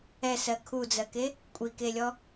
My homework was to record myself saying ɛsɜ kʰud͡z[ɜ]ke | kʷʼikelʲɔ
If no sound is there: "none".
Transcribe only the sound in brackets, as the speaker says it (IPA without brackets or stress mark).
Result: ɜ